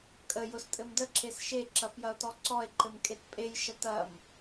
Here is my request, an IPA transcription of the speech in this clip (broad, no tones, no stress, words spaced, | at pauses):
kʼə jʊstʼɘmdə ǁesʃe ǁɐfjɐo̯tɔǀɔe̯ ǃɘmkʼetpʼej ʃɐtɐm